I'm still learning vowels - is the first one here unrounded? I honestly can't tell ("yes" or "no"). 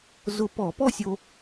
no